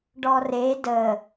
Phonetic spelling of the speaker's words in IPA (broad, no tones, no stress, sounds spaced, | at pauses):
ɖ ɔ r e d ə